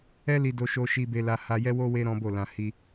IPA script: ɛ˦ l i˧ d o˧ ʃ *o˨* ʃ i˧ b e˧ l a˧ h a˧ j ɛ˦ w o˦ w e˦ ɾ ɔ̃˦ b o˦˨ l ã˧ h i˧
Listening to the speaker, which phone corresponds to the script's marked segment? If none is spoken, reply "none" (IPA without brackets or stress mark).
o˧